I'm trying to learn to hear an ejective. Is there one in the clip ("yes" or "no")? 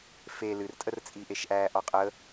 yes